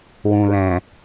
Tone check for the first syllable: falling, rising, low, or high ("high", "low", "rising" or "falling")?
low